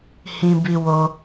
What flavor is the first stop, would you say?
plain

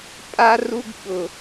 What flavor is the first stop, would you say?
ejective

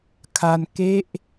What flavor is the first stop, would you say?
aspirated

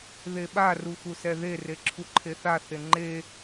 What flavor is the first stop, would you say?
implosive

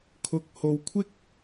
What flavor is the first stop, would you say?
aspirated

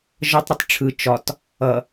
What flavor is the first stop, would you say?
plain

